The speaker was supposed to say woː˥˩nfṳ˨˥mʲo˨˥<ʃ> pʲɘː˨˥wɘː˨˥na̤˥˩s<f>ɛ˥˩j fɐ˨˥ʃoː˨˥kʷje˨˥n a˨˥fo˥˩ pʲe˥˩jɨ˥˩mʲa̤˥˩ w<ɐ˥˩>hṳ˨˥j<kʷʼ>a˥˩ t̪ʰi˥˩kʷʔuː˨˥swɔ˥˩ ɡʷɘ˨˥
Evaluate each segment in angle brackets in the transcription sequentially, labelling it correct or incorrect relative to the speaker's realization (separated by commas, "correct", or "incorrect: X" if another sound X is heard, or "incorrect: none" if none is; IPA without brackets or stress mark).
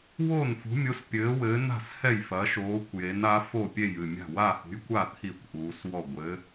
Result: incorrect: s, incorrect: h, incorrect: a˥˩, incorrect: kʷ